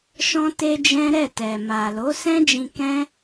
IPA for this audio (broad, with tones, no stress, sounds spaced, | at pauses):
ʃ ɔ̃˧ t e˧ d͡ʒ ɛ̃˦ ɾ ɛ˦˨ t ɛ˨ m a˨ l o˨˦ s ɛ̃˦ d͡ʒ ĩ˧ k ɛ̃˦